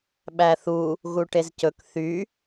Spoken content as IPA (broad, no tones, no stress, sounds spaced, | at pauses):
ɓ æ θ u | ɣ u ʈ e z c ɵ k θ y